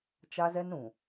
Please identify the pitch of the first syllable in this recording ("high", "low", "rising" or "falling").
high